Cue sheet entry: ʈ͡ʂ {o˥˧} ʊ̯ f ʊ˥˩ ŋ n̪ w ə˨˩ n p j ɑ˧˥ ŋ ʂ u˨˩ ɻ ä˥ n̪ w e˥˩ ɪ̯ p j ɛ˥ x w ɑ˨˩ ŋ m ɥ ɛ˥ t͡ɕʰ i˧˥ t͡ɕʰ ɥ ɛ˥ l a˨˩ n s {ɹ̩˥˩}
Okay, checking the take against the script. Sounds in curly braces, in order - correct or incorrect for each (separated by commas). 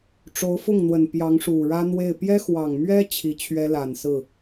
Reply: incorrect, correct